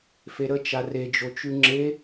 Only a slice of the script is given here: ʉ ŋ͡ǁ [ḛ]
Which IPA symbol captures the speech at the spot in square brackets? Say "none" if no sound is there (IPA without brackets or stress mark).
e